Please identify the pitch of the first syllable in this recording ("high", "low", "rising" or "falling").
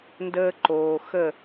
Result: high